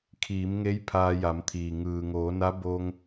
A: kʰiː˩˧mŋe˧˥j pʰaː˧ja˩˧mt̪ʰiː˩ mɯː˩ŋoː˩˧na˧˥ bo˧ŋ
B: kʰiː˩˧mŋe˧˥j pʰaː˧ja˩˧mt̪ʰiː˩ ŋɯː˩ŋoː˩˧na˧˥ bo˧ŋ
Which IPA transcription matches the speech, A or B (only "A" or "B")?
B